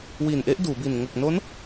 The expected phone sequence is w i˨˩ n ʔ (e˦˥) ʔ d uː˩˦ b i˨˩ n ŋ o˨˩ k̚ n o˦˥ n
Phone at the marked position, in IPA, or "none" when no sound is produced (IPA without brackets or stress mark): e˦˥